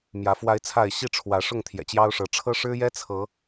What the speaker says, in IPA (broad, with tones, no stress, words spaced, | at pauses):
mjä˨˦fwa˦ɪ̯t͡sʰa˥˨ɪ̯ ɕi˥˨ʈ͡ʂʰwä˨˦ ʂʊ˥˨ŋt̪ʰjɛ̰˨˩t͡ɕjɑ˦ʊ̯ʂɤ˨˦ ʈ͡ʂʰɤ˦ʂɻ̩˦jɛ˦ t͡sʰɤ˨˦